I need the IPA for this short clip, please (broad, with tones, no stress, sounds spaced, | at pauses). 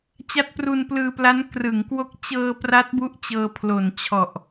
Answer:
t͡ɕ a˦˥ t̚ p r u˧ n p l ɯː˧ p l a˦˥ n k r ɯ˩˦ ŋ k w o˦˥ k̚ t͡ɕ ɤː˧ p r a˦˥ t̚ b u˦˥ ʔ t͡ɕ ɤː˧ pʰ l o˨˩ n t͡ɕʰ ɔ˨˩ ʔ